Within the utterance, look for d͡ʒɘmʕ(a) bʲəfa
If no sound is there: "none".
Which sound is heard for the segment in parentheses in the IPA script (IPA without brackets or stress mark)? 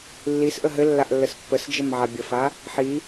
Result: a